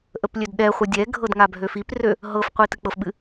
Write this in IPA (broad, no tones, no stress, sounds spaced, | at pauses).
ʔ ə p lʲ ø d ɗ ɛ χʷ ɨ dʲ ɛ ɡʱ ɤ d ŋ a bʱ ø f i p r ø | ɦ ɤ f qʷ i t ɨ k͡p ɤ f ɓ ɨ